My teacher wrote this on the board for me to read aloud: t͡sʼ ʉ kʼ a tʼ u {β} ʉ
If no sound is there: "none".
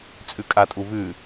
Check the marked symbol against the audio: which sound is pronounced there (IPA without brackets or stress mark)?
β